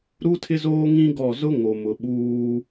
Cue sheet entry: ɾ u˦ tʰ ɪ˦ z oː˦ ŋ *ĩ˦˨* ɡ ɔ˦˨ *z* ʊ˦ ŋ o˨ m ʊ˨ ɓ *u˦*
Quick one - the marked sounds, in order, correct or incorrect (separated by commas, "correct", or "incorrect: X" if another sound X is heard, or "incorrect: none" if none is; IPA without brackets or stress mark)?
incorrect: ĩ˦, correct, incorrect: uː˦